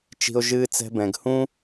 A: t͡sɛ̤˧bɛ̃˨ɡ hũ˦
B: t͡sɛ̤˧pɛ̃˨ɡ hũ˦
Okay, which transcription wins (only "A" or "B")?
A